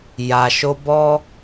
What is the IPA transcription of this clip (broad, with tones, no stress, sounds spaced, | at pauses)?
j a˨ ʃ o˧ b ɔ˦